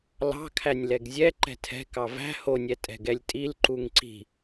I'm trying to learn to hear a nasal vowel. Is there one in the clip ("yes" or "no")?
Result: no